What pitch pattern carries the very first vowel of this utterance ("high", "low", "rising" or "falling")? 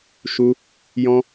high